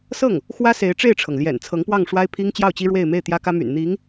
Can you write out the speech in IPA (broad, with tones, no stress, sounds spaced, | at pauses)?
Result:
s ɤ˥˩ ŋ | x w ä˥ s e˧˥ ɪ̯ ʈ͡ʂ e˥˩ ɪ̯ ʈ͡ʂʰ ɤ˩ ŋ l j ɛ̰˨˩ n t͡sʰ ɤ˧˥ ŋ p w ɑ˥˩ ŋ ʂ w a˥ ɪ̯ pʰ i˥ ŋ t͡ɕ j ɑ˥˩ ʊ̯ t͡ɕ i˥ ɻ w e˥˧ ɪ̯ m e˥˩ ɪ̯ t̪ j ä˥ k ä˥ m y̰˨˩ n n̪ i˧˥ ŋ